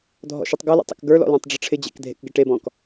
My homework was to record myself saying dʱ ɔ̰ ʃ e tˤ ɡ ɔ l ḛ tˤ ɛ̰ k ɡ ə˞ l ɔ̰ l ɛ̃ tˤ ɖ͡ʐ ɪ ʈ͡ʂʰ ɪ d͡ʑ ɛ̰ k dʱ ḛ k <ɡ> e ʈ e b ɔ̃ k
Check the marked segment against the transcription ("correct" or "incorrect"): correct